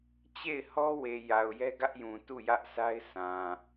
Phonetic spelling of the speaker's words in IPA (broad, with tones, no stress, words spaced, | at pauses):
t͡ɕe˦˨ɪ̯hɔ˦we˨ ja˨ʊ̯jɛ˦ɡä˦ʔ jũ˨tu˦˨jä˦ʔsʰa˦ɪ̯ sã˨